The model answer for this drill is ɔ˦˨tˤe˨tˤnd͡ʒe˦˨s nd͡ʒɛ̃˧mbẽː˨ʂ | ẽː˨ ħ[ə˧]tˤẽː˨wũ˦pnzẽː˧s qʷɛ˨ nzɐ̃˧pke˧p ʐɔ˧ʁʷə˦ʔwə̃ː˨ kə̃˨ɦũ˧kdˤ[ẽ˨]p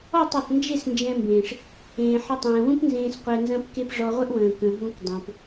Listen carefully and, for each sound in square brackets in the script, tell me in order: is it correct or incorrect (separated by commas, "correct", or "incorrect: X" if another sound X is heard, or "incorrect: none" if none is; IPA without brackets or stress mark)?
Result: correct, correct